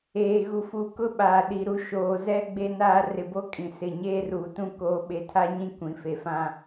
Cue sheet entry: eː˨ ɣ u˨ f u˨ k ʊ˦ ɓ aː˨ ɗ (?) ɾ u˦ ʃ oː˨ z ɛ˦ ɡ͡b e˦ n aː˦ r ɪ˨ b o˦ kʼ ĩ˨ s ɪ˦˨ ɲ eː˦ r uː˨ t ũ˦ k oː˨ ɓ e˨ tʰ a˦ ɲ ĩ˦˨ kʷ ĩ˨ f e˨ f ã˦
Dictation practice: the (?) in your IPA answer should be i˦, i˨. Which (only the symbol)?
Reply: i˨